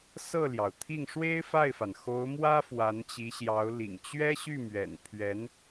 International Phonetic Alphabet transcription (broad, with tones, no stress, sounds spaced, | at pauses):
s ɤ˥˩ l j ɑ˩ ʊ̯ t̪ʰ i˥˩ ŋ ʂ w e˥ ɪ̯ f a˥˩ ɪ̯ f a˩ n x o˧˥ ʊ̯ m w ä˥ f w a˧˥ n t͡ɕ i˧˥ ɕ j ɑ˧˥ ʊ̯ l ḭ˨˩ ŋ t͡ɕ ɥ ɛ˥ ɕ y˥˩ m ɥ ɛ̰˨˩ n pʰ ɥ ɛ˧˥ n